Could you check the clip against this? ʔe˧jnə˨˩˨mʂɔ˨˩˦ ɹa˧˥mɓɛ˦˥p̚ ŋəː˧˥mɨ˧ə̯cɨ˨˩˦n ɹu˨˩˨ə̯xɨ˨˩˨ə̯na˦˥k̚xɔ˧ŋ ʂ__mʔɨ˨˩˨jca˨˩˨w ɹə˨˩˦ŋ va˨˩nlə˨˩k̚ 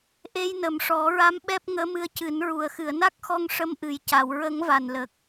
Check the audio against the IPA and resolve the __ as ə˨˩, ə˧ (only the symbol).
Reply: ə˧